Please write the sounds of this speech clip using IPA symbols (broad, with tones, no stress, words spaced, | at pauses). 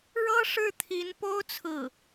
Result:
ɻɤ˥ʂɻ̩˥˩t̪ʰi˧˥npo˥ʊ̯ t͡sʰɹ̩˥˩